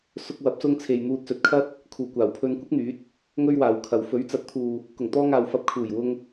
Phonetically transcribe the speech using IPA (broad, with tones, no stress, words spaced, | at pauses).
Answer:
sʊ˧k̚wɐ˨˥p̚sʊ˧ŋ t͡sʰe˨jn̪uː˧t̚sɵ˨t̚kʰɐ˥t̚ | kʰuː˨˩kʷaː˨˩wpʰɵ˧nkʷɪ˥k̚ n̪yː˨˥t̚ | ŋɵ˥ɥwaː˨wkʰɐ˨w fɵ˨˥ɥt͡sɐ˨˥t̚t̪ʰuː˨ | kʊ˨˩ŋt̪ɔː˧ŋaː˨w fɐ˧p̚ kʰuː˨˩jwʊ˧ŋ